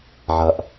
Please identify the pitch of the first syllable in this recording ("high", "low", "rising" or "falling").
low